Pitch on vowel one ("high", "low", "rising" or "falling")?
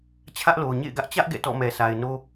high